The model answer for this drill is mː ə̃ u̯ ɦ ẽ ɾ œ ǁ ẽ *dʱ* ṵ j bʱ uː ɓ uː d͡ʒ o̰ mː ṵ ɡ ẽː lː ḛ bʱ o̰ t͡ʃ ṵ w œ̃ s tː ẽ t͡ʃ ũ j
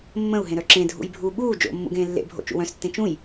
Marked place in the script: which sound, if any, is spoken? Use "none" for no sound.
dʱ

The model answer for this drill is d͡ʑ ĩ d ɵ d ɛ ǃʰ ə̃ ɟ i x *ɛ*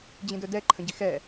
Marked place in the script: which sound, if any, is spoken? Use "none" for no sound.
ɛ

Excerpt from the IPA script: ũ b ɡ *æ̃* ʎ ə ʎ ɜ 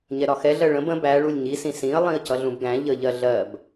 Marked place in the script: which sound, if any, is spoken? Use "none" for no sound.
æ̃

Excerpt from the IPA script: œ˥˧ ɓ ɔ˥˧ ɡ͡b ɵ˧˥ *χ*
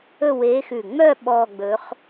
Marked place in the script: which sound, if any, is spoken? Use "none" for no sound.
χ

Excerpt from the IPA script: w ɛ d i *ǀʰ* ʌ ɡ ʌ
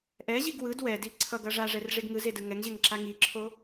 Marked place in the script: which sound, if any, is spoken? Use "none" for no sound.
ǀʰ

